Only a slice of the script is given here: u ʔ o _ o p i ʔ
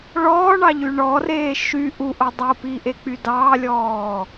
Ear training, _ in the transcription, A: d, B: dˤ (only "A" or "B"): B